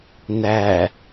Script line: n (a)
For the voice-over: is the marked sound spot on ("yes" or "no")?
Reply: no